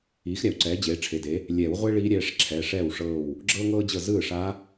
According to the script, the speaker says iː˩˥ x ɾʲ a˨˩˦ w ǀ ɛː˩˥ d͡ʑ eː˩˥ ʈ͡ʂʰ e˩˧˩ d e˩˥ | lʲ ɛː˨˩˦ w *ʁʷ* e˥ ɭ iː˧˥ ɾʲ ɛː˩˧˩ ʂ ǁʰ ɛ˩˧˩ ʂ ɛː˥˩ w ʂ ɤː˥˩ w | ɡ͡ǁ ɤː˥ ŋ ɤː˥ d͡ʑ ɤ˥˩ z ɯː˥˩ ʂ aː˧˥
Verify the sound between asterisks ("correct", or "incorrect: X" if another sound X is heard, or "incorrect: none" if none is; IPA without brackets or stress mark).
correct